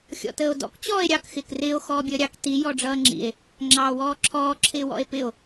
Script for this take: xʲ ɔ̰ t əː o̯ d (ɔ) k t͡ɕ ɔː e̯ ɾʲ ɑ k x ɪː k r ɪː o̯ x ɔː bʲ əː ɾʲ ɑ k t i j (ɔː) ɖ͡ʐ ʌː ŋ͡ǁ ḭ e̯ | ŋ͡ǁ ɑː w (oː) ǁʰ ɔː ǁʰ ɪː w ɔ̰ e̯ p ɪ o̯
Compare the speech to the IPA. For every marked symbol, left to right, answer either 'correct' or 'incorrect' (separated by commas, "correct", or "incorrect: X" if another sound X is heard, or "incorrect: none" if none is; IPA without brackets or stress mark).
incorrect: ɔ̰, incorrect: ɔ, incorrect: ɔː